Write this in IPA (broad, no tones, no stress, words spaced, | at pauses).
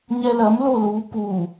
ɲɛlɐm lolu pu